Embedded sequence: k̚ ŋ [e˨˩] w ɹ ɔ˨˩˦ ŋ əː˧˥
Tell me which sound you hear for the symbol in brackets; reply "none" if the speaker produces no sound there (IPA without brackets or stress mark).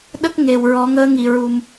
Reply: e˨˩